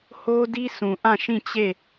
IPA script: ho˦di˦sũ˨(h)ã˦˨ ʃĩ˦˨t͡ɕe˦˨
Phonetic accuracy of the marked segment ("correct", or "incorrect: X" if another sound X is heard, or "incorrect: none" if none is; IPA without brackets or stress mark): incorrect: ʔ